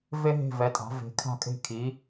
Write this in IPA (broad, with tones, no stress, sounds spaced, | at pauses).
v e˥ ɦ e̤˥˩ v ɛ˩˥ tʼ a̤˩˥ v e̤˩˥ kʰ a̤˥˩ kʼ e̤˥˩ kʰ i˩˥